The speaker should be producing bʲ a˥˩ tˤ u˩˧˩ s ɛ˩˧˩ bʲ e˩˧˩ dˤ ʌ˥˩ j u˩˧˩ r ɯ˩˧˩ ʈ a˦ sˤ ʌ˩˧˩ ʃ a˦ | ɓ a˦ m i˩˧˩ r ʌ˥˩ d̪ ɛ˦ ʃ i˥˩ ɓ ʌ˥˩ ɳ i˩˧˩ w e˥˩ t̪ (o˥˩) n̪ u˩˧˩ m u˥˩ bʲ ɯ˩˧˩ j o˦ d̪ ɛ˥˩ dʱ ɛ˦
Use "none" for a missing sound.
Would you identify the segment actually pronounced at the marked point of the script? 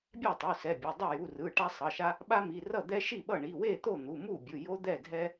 o˥˩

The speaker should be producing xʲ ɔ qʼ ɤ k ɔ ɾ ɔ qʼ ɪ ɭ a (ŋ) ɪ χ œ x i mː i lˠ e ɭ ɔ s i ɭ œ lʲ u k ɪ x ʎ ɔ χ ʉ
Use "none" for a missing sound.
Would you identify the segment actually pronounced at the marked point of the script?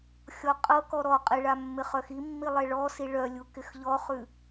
mː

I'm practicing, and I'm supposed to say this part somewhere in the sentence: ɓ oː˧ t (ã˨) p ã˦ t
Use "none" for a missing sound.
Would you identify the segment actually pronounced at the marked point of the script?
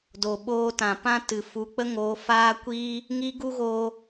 ã˨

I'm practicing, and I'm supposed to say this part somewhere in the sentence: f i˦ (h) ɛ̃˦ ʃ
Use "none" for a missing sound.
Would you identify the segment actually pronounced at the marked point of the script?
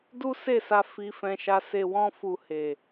f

